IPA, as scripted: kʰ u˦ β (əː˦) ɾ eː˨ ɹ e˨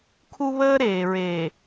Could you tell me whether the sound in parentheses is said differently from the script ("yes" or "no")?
no